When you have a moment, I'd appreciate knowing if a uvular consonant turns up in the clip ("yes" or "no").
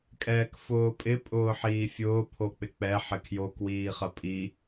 yes